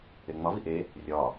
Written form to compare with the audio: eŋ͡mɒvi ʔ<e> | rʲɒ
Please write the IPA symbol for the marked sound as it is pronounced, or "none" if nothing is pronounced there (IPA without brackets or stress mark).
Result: e